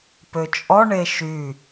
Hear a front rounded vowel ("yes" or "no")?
yes